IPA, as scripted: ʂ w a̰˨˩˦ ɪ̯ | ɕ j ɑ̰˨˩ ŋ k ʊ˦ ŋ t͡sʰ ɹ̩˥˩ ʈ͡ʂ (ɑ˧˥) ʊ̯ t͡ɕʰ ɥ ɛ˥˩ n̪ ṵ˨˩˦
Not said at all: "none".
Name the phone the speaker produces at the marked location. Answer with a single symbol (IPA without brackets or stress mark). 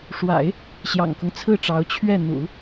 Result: ɑ˧˥